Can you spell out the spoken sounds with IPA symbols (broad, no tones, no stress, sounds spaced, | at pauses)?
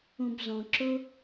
ũ b z ɔ̃ ǁ ʊ